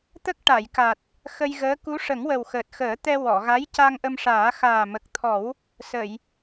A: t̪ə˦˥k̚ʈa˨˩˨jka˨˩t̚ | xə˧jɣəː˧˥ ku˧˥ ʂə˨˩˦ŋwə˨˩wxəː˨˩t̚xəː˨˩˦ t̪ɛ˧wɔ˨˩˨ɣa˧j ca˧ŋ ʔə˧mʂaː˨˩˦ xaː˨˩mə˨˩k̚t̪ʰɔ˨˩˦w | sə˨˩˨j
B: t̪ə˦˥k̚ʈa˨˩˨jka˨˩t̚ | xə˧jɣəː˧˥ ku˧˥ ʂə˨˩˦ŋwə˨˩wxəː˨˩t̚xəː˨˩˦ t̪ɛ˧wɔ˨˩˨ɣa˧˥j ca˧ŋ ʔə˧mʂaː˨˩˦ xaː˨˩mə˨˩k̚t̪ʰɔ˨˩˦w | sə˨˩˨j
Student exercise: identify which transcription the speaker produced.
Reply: B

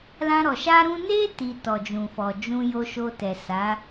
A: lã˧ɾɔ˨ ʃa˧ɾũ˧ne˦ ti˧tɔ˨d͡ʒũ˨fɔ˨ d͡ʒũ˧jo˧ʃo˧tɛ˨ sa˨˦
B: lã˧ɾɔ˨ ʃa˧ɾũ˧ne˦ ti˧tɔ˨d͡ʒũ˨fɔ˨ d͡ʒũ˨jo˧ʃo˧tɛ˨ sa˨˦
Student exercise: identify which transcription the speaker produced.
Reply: A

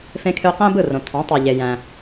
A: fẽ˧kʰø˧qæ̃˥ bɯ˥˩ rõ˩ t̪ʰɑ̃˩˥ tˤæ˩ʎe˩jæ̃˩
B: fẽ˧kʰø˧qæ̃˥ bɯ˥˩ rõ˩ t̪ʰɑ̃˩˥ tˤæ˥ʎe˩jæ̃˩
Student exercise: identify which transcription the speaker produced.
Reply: A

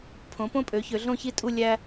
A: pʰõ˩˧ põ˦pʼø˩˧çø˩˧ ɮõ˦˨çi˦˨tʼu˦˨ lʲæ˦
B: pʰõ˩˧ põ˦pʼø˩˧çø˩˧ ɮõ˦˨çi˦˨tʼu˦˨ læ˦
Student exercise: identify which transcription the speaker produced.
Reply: A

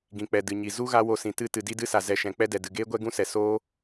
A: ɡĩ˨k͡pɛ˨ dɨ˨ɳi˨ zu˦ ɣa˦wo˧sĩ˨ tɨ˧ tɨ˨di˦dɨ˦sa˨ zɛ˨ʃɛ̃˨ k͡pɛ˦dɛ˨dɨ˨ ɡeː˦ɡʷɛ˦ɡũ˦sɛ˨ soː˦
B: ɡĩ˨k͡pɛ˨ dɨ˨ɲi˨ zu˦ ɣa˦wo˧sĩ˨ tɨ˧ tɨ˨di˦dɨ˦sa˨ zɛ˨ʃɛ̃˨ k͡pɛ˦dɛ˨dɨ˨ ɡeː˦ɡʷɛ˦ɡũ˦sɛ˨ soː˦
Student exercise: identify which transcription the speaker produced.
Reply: B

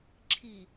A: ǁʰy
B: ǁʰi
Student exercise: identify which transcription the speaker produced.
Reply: B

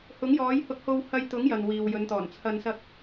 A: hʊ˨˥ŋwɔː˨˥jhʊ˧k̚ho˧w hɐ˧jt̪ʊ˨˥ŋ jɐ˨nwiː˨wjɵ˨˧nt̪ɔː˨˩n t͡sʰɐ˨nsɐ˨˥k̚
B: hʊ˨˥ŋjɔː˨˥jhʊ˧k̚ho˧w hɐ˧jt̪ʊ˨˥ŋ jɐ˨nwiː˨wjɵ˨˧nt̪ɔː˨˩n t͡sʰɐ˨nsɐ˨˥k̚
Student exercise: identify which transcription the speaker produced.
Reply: B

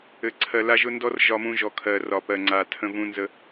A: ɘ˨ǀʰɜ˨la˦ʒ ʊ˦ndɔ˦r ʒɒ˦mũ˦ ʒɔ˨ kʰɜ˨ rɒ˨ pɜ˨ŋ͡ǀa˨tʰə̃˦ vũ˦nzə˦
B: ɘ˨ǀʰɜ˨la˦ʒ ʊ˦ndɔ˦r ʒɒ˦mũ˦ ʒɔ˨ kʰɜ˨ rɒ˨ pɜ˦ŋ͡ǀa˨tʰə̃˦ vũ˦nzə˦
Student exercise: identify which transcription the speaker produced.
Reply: A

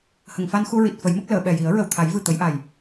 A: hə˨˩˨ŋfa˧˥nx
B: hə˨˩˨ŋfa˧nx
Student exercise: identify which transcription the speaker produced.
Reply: B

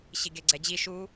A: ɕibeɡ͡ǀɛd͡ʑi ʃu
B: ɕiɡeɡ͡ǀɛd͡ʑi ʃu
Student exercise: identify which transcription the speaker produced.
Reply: B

